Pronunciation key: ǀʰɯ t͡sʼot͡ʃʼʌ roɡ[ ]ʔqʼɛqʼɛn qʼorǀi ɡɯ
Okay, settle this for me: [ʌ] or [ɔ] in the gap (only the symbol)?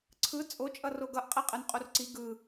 ʌ